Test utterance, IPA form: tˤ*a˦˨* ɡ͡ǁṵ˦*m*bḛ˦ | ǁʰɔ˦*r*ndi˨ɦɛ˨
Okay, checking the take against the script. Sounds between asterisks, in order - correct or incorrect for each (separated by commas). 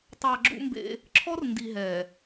incorrect, correct, correct